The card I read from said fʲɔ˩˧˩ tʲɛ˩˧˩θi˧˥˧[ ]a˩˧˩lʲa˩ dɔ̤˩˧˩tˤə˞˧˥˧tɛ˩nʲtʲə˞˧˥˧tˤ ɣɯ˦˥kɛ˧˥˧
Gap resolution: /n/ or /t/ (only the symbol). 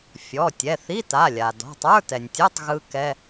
t